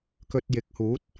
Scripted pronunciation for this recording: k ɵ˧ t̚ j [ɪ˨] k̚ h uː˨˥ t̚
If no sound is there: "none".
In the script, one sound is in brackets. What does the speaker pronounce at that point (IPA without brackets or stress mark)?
ɪ˨˥